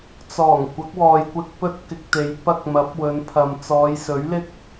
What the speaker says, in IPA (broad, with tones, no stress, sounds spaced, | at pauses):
t͡s ɔː˨˩ ŋ kʷ ɐ˨˥ k̚ w ɔː˨ j kʷ ɪ˧ k̚ p ɵ˥ t̚ k ɪ˧ k̚ t̪ e˨˧ j p ɐ˧ k̚ m ɐ˨˥ p̚ w ɵ˨˧ n pʰ ɐ˨ m t͡s ɔː˨˧ j s ɵ˨˥ ɥ l ɪ˥ k̚